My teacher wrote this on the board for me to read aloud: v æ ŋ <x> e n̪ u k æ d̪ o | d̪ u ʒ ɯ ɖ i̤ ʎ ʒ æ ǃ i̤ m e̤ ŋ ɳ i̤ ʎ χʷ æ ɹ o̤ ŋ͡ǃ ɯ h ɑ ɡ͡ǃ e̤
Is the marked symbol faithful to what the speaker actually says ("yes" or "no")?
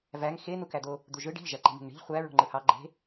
yes